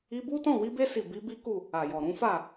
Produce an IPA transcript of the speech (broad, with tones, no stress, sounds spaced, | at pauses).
i˧ b u˦ t ɔ̃˦˨ w i˧ b e˧ s i˨ b i˨˦ b i˦ k u˦˨ | a˨ j ɔ˨ ɾ ũ˨˦ f a˦˨